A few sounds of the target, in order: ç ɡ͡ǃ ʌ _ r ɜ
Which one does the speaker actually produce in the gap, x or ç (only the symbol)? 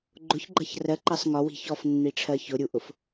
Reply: ç